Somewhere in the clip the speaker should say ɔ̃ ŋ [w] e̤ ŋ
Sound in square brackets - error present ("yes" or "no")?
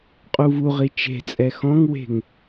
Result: no